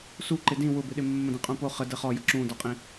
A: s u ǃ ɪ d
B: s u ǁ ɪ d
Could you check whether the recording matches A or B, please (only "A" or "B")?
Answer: A